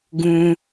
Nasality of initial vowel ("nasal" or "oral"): nasal